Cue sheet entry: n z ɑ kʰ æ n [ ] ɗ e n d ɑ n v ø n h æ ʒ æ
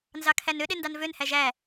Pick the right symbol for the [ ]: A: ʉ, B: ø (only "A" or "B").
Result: B